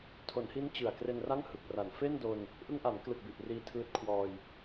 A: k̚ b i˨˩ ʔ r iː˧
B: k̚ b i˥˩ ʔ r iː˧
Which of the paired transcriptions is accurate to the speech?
A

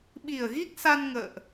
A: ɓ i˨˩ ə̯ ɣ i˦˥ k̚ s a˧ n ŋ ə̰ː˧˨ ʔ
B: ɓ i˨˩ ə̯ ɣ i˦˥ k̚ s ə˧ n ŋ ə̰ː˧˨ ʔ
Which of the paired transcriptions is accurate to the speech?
A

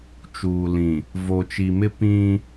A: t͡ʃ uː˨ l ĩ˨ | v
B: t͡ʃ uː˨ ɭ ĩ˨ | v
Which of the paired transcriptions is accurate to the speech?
A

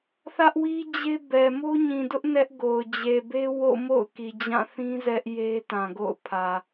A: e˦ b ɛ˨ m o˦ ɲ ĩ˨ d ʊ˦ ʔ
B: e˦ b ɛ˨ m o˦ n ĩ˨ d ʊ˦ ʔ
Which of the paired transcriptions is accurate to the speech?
A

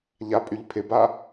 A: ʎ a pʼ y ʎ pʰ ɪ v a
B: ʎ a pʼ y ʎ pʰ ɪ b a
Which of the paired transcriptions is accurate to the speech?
B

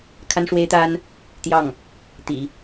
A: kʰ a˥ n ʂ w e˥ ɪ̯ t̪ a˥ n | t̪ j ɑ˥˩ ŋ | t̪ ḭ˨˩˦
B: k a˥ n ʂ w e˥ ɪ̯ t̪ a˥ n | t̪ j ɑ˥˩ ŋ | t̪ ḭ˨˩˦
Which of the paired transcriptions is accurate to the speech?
A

